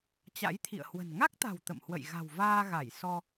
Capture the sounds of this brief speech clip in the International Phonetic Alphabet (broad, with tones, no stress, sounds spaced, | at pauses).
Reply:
t͡ɕ a̰˧˥ j t̪ʰ ḭ˧˨ ə̯ h w ə̤˨˩ n ŋ a˦˥ k̚ t̪ a̤˨˩ w t̪ ə̰˧˨ m h w ə̰˧˨ j ɣ a̤˨˩ w v aː˧ ɣ a˧˩ j s ɔ˧